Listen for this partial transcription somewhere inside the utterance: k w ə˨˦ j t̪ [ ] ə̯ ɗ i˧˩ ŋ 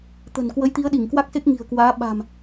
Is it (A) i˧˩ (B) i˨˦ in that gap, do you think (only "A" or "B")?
B